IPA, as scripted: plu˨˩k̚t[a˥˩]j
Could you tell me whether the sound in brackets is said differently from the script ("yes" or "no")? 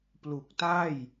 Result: no